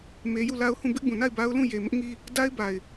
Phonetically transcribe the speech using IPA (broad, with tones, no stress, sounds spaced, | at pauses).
m e˦ j u˦˨ l a˦ ʊ̯ h ũ˦˨ b ɪ˦ ʔ b ũ˨ n a˦˨ ɪ̯ b a˦ ʊ̯ l ũ˦˨ j e˨ m ɪ˦ ʔ ŋ i˦ | d a˦ ɪ̯ b a˨ ɪ̯